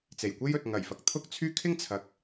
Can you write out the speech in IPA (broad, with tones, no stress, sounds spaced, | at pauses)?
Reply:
t͡s e˨˩ j kʷ e˥ j ɵ˨ t̚ ŋ ɐ˨˩ j f ɐ˨ k̚ t̪ʰ ʊ˥ k̚ t͡sʰ yː˥ kʰ ɪ˥ ŋ t͡sʰ ɐ˨ k̚